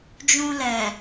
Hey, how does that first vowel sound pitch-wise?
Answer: low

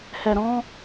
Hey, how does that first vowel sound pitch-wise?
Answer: low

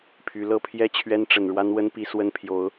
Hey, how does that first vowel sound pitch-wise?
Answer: rising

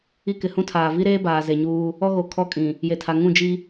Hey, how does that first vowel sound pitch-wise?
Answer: high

